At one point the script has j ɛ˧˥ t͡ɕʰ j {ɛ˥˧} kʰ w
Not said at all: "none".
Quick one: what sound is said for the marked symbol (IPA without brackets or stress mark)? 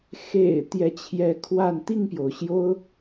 ɛ˧˥